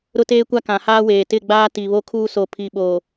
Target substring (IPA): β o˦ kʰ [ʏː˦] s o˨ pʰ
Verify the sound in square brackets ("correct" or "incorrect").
incorrect